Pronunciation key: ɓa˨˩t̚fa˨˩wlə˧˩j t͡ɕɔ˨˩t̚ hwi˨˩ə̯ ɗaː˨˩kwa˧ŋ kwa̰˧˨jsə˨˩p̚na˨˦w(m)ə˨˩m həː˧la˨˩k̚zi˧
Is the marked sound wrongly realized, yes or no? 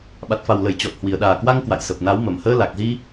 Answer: no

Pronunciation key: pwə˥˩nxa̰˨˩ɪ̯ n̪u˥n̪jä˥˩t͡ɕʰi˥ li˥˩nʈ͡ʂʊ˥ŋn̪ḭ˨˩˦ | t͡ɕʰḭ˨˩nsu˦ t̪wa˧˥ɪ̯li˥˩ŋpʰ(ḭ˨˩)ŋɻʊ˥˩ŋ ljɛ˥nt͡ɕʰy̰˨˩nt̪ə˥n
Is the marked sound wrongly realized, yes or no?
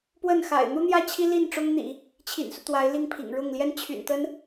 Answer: no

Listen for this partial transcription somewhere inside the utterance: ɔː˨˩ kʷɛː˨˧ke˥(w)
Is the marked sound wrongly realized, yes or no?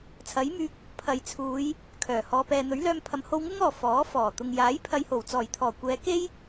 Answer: yes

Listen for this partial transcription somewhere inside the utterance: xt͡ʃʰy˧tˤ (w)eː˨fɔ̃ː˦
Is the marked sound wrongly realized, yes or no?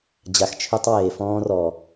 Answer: no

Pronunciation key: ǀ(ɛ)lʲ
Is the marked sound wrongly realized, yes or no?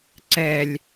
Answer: no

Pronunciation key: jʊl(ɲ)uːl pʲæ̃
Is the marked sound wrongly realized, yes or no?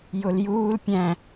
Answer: yes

